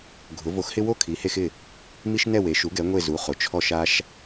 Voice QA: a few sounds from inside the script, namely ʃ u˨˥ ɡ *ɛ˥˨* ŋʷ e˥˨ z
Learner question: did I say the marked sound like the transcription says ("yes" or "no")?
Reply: no